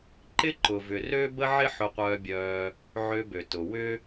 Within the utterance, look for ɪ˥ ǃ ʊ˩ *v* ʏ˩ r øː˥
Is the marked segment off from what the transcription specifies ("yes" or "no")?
no